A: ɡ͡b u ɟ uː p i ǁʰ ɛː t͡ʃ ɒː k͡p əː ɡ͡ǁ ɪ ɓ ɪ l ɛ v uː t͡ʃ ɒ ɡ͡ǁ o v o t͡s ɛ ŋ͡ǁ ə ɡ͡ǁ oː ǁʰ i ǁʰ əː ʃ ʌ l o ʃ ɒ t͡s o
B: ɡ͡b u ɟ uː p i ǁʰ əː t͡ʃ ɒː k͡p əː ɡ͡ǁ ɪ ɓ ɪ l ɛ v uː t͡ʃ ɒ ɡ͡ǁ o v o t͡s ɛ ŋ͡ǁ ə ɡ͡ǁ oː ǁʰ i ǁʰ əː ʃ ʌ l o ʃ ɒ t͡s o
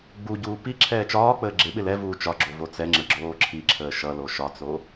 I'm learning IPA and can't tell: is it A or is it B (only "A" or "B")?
A